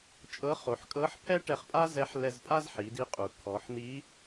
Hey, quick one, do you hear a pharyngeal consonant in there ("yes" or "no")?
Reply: yes